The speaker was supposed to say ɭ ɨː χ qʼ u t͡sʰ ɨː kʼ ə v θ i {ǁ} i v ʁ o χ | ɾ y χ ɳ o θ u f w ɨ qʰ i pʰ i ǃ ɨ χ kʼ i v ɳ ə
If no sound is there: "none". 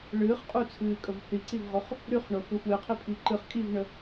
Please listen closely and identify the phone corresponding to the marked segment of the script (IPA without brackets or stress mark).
ǀ